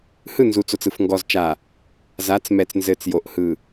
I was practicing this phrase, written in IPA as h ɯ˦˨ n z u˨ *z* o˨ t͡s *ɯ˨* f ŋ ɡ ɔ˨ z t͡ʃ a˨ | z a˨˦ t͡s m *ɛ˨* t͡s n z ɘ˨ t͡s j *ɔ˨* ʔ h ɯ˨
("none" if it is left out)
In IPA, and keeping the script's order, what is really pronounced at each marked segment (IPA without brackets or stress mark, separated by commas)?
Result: t͡s, ɯ˨, ɛ˨, o˨